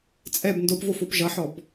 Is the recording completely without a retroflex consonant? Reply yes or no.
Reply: yes